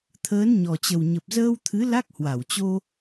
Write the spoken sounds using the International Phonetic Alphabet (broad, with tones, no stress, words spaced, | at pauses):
t̪ʰəː˨˦nɲɔ˨˩t͡ɕə˨˩w ɲə˨˩p̚zəː˧wt̪ʰɨ˨˦ la˦˥k̚hwa˧˩wt͡ɕo˧